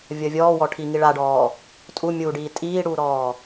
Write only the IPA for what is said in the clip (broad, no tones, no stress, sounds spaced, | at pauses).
vʲ ʌ vʲ ɔː w ɔ ʈʰ i ŋ i ɭ a ɖ ɔː | tʼ u mʲ uː ɖ iː tʼ iː ɽ uː ɾ ɔː